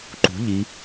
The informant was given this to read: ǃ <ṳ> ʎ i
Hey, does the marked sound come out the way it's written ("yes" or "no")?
yes